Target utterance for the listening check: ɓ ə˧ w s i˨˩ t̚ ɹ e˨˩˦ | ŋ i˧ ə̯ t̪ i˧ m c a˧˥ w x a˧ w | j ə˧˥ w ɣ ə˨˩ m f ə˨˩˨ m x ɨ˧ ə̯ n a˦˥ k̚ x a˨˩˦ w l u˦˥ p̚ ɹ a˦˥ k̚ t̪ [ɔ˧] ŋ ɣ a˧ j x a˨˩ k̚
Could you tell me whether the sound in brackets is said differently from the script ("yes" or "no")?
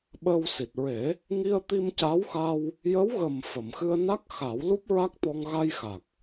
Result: no